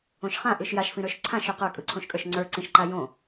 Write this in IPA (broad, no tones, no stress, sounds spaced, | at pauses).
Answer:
õ ʃ χ ã ʔ ɯ ʃ j a ʃ f ĩ ɾ ə˞ ʃ ǀʰ ã ʃ ɵ q ə˞ kʼ ɯ ǀʰ õ ʃ kʼ ə˞ ʃ ŋ͡ǀ ə˞ ǀ ĩ ʃ ǃ a j õ